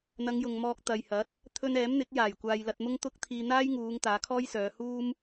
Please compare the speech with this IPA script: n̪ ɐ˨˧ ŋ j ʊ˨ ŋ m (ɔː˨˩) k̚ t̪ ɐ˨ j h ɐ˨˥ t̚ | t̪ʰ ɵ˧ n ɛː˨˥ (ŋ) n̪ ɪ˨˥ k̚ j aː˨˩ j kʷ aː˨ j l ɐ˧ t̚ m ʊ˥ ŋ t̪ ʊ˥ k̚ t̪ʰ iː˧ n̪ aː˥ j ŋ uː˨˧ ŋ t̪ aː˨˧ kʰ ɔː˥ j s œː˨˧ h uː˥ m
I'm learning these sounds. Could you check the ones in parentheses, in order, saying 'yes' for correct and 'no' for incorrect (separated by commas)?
no, no